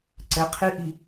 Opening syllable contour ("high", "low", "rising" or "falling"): rising